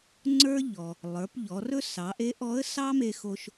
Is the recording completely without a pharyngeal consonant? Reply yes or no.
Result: yes